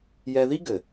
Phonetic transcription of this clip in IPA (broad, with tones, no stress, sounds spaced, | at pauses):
j ɛ˧ ð i˦ ɡ ɘ˨